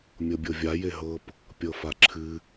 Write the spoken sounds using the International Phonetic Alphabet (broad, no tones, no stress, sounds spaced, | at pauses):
mʲ ɤ bʲ ɤ vʲ a j e ɦ ɤ p | pʲ ɤ f a ǁʰ ɨ